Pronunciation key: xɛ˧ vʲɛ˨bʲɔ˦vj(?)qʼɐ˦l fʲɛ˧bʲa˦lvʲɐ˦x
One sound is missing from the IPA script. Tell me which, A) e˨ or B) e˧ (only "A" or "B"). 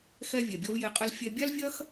B